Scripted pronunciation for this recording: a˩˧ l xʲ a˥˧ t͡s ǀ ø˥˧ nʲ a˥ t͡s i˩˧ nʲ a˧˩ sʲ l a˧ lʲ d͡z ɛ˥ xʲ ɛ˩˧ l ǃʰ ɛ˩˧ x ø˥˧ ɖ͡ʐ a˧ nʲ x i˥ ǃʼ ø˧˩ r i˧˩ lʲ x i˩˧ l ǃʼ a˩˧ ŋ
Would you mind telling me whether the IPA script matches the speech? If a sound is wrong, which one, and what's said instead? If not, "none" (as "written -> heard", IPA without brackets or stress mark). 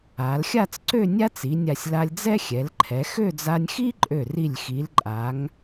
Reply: ɖ͡ʐ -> d͡z